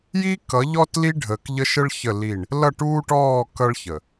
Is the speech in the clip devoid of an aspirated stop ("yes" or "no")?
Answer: yes